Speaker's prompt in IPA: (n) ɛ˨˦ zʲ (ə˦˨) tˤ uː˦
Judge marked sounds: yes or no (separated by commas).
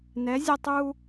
yes, yes